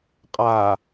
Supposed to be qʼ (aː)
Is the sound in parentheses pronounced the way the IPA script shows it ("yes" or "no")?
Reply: yes